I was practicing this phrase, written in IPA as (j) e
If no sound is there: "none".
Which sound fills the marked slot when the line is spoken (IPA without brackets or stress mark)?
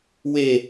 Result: w